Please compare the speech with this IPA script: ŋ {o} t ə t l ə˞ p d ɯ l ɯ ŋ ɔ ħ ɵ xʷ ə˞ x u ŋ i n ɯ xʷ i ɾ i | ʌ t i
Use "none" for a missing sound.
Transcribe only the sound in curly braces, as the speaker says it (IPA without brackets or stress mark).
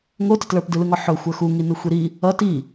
o